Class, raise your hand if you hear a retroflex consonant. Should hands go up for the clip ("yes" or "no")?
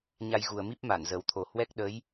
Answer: no